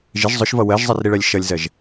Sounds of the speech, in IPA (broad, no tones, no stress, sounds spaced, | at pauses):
ʒ ɪ ʒ zˤ ʊ ʃ v ʌ w ɜ ʒ zˤ ɛ r ɾ i ɭ ɜ lʲ ʃ ʌ lʲ z ɜ ʒ